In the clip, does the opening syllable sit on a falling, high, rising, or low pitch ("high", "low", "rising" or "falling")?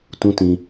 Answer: high